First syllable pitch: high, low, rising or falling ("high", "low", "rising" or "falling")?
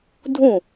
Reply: falling